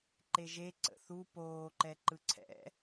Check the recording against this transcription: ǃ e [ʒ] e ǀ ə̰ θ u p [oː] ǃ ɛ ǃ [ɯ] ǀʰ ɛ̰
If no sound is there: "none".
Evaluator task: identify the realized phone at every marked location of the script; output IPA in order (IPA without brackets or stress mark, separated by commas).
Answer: ʒ, oː, ɯ